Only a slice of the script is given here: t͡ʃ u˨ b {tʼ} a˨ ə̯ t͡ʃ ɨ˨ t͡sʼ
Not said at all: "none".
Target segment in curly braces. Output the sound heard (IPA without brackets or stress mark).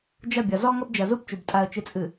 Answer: tʼ